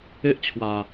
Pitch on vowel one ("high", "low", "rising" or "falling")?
high